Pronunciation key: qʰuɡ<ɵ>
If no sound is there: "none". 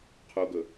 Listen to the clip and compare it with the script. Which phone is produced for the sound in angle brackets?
ɵ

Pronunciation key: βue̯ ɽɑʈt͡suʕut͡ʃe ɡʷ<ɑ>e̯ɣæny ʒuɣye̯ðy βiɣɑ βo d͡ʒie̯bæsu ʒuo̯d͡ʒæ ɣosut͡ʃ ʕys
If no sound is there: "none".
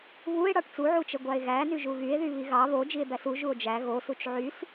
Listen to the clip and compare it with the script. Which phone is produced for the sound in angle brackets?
ɑ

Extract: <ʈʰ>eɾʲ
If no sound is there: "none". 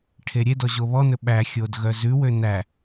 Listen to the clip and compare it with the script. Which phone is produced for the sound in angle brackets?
ʈʰ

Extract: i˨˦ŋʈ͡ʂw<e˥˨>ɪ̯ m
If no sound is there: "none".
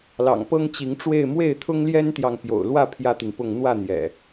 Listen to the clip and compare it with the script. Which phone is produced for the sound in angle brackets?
e˥˨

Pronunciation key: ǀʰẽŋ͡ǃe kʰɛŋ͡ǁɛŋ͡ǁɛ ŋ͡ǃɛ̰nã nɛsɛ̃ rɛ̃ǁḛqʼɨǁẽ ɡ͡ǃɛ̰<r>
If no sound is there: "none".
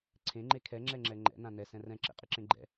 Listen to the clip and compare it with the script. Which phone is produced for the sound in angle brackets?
none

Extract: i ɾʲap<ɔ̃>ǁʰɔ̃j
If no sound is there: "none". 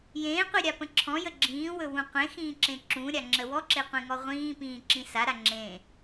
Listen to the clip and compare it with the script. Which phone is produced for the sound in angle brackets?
ə̃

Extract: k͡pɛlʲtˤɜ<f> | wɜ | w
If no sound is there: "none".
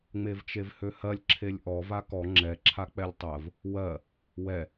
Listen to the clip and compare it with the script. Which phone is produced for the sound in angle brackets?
v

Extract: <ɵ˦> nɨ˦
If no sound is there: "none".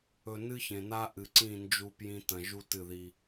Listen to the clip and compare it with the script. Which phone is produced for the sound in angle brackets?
ɵ˨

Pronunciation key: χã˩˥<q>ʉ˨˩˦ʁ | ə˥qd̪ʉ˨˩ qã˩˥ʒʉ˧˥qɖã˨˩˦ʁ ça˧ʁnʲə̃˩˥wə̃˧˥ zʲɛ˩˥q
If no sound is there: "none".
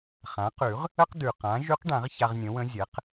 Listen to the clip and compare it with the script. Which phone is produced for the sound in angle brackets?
q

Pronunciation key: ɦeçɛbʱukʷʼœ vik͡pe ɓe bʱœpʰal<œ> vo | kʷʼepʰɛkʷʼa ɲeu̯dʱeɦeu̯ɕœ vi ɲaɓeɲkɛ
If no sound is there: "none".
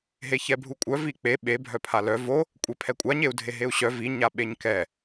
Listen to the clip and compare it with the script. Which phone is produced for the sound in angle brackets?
œ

